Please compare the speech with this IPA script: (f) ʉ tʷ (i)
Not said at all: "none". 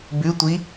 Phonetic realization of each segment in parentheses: b, i

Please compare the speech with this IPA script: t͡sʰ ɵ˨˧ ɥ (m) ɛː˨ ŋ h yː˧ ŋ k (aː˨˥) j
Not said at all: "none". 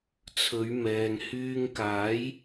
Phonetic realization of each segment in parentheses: m, aː˨˥

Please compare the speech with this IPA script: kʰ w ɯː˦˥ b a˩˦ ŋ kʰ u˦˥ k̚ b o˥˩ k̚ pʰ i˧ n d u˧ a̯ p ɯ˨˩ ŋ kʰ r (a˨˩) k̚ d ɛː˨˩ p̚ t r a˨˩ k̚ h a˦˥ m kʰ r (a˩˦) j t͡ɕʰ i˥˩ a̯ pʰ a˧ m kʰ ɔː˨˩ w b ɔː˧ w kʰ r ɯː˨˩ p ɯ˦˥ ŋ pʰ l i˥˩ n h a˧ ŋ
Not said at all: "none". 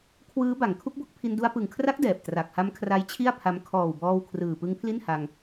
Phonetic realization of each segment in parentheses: a˦˥, a˦˥

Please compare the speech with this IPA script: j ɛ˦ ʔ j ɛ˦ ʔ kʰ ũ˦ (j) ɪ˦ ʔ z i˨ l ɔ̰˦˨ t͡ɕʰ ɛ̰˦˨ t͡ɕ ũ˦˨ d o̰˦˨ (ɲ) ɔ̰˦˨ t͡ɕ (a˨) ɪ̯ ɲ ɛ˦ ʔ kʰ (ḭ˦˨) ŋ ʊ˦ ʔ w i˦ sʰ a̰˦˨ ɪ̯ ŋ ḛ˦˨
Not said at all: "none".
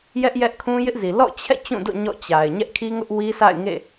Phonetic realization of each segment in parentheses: j, ɲ, a˨, i˦

